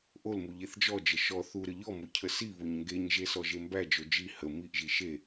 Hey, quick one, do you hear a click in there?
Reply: no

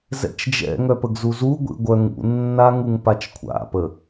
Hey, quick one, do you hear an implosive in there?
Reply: no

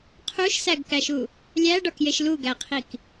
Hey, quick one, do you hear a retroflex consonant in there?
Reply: yes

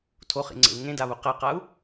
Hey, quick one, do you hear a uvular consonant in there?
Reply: yes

